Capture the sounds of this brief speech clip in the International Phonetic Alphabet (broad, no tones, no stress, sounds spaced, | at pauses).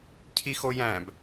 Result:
cʰ i x o j æ̃ b